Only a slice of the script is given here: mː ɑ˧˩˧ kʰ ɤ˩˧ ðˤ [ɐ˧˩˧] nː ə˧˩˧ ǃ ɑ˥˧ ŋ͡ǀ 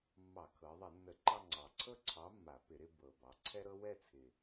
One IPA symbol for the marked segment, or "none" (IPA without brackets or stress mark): ɐ˧˩˧